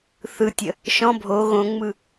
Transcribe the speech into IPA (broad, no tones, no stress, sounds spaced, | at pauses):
θ ɯ tʲ ə | ʃ ɔ̃ bʱ o ɣ õ ŋ͡m ɯ